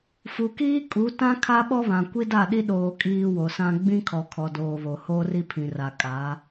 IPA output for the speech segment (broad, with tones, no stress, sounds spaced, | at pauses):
f u˨ k iː˦ kʼ u˨˦ t ã˦ kʰ a˦ ɓ ɔ˦ β ã˨ kʷ i˦ d a˦˨ ɗ i˦ ɗ oː˦ kʼ iː˦ w o˨ s ã˦ ɡ͡b ĩ˦ kʰ ɔ˨ kʰ ɔ˨ d oː˨ β o˨ h oː˦ r i˦ pʰ ĩ˨ r a˨ kʼ aː˨˦